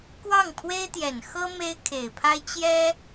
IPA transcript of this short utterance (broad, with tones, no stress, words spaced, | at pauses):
kwɑ˥˩ŋpʰwe˥ɪ̯t̪jɛ˨˩n xɤ˥ me˥ɪ̯kʰe˨˩ɪ̯pʰa˥ɪ̯ t͡ɕjɛ˥